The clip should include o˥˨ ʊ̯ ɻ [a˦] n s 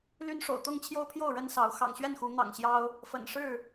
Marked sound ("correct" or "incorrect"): incorrect